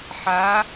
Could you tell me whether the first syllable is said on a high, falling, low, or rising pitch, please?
rising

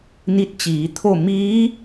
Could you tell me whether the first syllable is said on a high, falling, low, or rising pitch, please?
rising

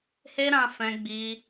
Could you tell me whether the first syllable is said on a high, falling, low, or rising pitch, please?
high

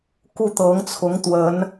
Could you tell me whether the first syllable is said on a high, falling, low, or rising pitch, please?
falling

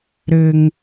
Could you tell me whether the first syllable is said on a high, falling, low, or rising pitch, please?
high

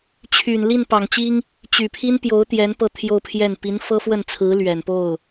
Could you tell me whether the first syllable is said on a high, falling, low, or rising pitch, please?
low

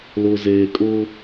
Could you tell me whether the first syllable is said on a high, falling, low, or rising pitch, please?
low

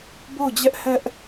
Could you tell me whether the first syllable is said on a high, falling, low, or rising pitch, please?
falling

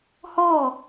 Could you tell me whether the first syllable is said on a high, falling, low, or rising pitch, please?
falling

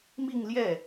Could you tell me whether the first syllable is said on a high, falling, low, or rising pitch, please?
falling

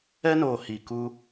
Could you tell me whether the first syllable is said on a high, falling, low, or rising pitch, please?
high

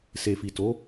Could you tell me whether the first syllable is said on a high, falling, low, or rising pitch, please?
low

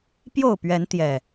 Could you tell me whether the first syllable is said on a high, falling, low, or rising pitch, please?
falling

